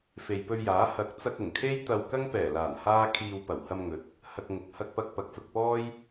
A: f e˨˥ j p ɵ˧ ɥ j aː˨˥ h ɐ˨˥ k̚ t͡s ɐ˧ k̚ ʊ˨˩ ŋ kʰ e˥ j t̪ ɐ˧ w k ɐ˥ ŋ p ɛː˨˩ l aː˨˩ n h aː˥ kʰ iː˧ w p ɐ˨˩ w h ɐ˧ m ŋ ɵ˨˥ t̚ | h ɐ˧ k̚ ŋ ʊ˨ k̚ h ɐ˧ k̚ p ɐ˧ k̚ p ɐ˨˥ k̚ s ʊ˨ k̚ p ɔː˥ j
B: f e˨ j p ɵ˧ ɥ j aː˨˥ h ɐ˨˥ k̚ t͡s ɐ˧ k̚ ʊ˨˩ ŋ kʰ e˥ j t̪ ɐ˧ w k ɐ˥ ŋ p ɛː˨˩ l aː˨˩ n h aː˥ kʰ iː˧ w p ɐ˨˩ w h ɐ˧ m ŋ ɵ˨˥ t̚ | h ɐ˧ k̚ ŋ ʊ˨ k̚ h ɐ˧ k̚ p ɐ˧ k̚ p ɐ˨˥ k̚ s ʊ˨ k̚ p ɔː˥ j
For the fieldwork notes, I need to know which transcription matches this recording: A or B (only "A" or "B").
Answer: B